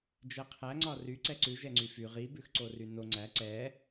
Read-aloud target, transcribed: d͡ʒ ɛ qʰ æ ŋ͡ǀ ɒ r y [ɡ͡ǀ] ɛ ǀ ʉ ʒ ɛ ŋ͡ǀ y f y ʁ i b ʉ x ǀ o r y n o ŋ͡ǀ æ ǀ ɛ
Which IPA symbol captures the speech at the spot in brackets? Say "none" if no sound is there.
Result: ǀ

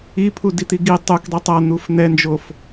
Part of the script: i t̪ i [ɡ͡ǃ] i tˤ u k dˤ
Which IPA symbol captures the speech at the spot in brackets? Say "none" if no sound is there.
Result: ɡ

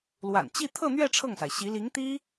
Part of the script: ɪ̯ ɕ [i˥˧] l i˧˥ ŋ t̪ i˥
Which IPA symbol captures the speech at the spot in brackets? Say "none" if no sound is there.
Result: i˧˥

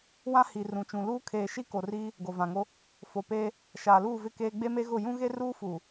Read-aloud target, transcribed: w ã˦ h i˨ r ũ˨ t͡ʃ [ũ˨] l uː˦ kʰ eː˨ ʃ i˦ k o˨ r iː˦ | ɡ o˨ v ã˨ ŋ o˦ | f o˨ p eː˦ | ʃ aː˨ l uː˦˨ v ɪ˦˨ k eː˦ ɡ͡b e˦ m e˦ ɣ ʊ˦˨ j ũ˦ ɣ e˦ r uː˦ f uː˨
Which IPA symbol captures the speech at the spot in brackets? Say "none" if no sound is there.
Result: ũ˨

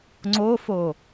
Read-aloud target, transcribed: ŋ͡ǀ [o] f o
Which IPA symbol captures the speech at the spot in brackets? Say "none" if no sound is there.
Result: o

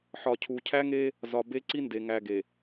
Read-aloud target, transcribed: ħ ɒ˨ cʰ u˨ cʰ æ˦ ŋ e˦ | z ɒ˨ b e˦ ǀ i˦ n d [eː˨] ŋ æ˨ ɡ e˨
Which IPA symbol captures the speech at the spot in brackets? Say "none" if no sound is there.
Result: e˨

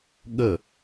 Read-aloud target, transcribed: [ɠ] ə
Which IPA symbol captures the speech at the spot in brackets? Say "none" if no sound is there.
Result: ɠ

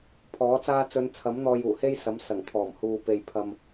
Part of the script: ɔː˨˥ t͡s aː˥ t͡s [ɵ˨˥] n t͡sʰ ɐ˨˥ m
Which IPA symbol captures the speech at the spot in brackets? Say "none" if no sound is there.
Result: ɵ˨˧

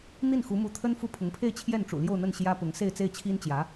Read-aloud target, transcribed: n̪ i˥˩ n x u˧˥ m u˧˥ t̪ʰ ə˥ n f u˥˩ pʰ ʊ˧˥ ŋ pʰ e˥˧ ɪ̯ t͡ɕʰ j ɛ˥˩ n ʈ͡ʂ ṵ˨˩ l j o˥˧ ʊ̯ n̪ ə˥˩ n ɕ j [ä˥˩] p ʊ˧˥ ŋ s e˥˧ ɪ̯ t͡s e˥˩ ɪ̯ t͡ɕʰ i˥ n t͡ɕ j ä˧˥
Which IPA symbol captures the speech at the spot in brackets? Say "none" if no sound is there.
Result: ä˥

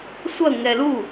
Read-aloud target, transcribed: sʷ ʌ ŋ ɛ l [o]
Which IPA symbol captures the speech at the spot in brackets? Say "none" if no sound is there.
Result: u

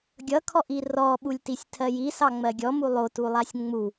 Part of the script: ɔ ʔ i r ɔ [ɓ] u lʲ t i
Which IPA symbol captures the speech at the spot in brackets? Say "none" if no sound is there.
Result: ɓ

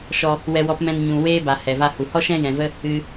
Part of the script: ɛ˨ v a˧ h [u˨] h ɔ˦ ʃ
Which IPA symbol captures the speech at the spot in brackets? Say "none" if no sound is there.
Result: u˨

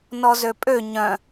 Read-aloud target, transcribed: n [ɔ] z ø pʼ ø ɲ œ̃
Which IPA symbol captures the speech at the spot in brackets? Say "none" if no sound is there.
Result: ɔ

